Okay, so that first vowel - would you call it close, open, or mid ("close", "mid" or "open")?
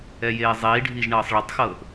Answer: mid